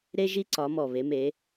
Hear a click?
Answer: yes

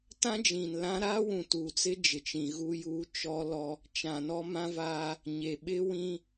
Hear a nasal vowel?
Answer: yes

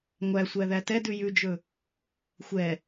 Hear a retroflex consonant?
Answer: no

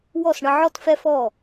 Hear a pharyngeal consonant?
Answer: yes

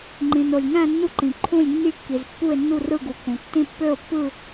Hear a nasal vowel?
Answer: yes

